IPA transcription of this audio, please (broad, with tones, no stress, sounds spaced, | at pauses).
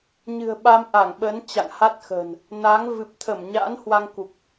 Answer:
ɲ ɨ̤˨˩ ə̯ ɓ a˧ m ʔ a˧˩ ŋ ɓ əː˨˦ n t͡ɕ a̰˧˨ ŋ h a˦˥ t̚ x ə̤ː˨˩ n | n a˨˦ ŋ v ɨ˨˩ p̚ t̪ʰ ə˧˩ m ɲ a̰ː˧˥ n h w a˧ ŋ k u˨˩ k̚